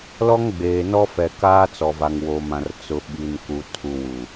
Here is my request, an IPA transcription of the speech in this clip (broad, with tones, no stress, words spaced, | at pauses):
lɔ˦ŋɡ͡beː˨nɔ˦ fɛ˨kaː˦t͡sɔ˨va˨ŋ wo˨mã˨r t͡sʊ˨ɓi˨nku˨ tʰu˨wu˨